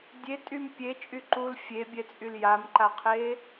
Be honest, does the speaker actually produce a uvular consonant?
yes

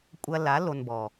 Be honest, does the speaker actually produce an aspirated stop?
no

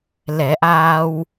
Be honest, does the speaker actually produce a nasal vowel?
no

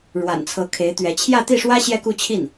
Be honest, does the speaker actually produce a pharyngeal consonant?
no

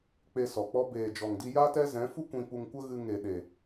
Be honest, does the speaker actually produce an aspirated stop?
no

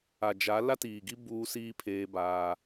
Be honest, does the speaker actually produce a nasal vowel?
no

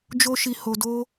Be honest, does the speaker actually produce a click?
no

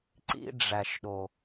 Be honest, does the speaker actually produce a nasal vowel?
no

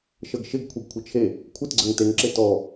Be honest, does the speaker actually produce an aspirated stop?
yes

